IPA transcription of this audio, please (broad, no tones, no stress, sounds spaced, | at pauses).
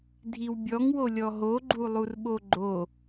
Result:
dʱ i w bʲ ɔ ŋ w o lʲ ɔ ɦ o ɡ͡ǃ u lˠ u r ɓ o ɡ͡ǃ o